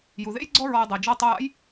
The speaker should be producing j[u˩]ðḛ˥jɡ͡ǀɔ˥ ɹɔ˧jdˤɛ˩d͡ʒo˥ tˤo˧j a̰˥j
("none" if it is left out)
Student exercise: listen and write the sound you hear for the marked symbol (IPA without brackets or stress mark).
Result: u˩